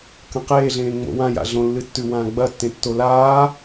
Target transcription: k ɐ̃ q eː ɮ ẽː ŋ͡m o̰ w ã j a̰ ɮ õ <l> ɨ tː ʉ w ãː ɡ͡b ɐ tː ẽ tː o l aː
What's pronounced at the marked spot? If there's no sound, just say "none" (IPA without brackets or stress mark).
lː